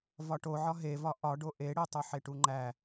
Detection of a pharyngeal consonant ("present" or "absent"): present